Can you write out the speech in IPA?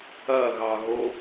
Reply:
ɐɣɑɣo

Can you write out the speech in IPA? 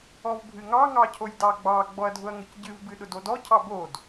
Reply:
ɔvbʱɨŋɑ ŋɑcʰojdɑɡ͡bɑ ɡ͡bɔɐ̯dʱʊɐ̯ŋʊcɟɨv bɨɗʊdodɔ cʰɑbod

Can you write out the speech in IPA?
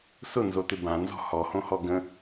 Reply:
sʊnzotɪ bãnzɔ̤ hɔhõhɔ ɡə̃

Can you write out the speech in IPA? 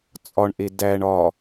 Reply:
t͡sʼɒɳʔe dæɳ ɒ

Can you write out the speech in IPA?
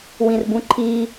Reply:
wĩrbũǃʰi

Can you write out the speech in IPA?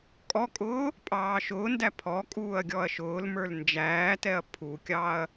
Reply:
kʼɔkʼʊː | pʼɑːʃʊːndæ pʰɔkʼuːɐ̯ ɡʲɔɐ̯ʃʊːlmə˞l nd͡ʒæːtɛɐ̯ pʰukʲɑɐ̯

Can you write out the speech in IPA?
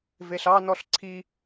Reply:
veɬɑnɔɬ ǀʰi

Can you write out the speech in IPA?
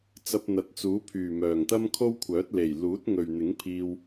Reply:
t͡sɐ˧p̚n̪ɐ˨t̚t͡suː˨˥pʰyː˨˩ mœː˨˩ŋt̪ɐ˥mkʰo˥wkʷʰœː˨˥t̚ le˨˩j luː˨˥t̚ŋɵ˨ɥn̪ɪ˨˥ŋpʰiː˧w

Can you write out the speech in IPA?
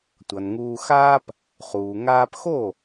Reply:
tʷʌ˩nŋuː˧xaː˥p | χuː˩ ŋaː˧pxo˥˩

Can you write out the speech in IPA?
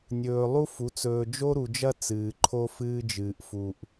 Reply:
nʲɵː˨ lˠu˦fu˨˦t͡s ɵː˨ d͡ʒo˦ɾu˨d͡ʒɐ˦ t͡sɨː˨ǃʰo˦fɨː˦d͡ʒɨː˨ʔ fu˨ʔ

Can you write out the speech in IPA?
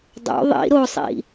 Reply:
dˤo̰ ðˤḭ ɾosˤḭ

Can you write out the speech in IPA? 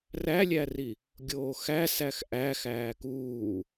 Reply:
rælʲæri | ɡʲoːxæsæx ʔæ xæːkuː

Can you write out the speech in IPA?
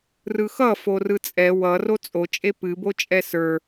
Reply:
rɯxʌ forɯt͡sʼɛ wʌ rot͡sʼot͡ʃʼe pɨbot͡ʃʼɛ sə˞

